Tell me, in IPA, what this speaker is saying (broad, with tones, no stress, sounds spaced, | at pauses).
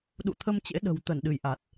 ɗ ṵ˧˨ t̪ʰ ə˧ m t͡ɕ ḛ˧˥ ɗ ə̤˨˩ w t̪ ə˧˩ n ɗ ɨ˧˩ j ʔ a˨˩ t̚